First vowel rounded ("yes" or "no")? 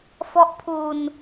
yes